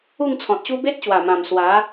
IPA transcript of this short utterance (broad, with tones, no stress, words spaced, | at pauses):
u˥˧ŋt͡sʰɔ̃˨t̚ɕu˦ be˦t̚ɕwa˨˩mã˨˩m swa˨˦